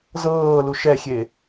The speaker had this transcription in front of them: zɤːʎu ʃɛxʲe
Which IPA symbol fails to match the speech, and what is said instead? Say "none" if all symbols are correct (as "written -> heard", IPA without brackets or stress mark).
ʎ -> l